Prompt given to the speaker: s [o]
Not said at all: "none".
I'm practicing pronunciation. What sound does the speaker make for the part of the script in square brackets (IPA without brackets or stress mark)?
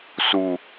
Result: u